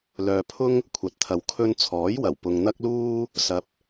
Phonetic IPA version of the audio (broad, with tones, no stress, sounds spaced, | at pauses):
l œː˧ pʰ ʊ˥ ŋ | kʷʰ ɐ˨˥ t̚ t̪ʰ ɐ˨ w kʰ ɵ˧ n t͡sʰ ɔː˨˥ j w ɐ˨˩ w p ʊ˨ ŋ n̪ ɐ˥ k̚ l uː˥ | s ɐ˧ p̚